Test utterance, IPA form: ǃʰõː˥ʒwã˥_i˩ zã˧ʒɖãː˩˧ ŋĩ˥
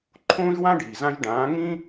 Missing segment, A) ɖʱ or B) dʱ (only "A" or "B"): A